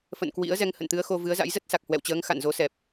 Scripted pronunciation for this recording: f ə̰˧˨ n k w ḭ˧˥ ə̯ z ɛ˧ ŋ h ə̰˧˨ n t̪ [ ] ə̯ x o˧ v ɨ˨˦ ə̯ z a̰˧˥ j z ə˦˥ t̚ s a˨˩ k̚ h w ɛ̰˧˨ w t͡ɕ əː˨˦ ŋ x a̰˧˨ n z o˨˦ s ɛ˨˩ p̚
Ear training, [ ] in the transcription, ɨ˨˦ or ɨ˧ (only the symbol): ɨ˨˦